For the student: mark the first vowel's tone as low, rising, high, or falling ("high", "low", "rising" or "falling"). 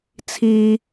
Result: high